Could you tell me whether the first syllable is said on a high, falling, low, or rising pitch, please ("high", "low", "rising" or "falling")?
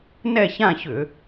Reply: falling